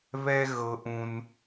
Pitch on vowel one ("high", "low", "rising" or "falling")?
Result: high